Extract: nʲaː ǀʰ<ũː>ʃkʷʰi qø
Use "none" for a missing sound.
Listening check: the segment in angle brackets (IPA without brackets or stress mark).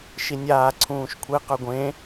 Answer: ũː